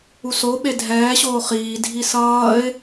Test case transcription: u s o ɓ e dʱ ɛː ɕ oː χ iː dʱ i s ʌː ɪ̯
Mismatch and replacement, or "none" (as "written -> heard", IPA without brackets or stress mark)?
none